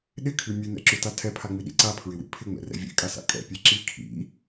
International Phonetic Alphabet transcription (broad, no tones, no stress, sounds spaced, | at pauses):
ɗ ɪ kʰ ʉ mʲ ʉ n̪ ɛ̰ ǁ ʉ t a tʰ ɛ pʰ a ŋ͡m i ɗ ḭ ǀ a pʰ ɹ ɪ w ḭ pʰ ɪ ŋ͡m ɛ̰ r ɛ̰ vʲ ɛ̰ kʼ a s a̰ kʼ ɛ̰ pʲ ɛ ǁ i kʰ ḭ